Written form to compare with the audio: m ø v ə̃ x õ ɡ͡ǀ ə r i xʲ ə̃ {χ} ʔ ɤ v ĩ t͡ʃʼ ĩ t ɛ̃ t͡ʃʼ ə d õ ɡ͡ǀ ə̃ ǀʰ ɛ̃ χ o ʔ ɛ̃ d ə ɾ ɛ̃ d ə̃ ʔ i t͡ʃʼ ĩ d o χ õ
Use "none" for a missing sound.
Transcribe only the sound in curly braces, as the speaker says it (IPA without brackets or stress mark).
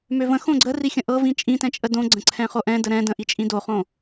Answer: none